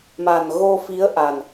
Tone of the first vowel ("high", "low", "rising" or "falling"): low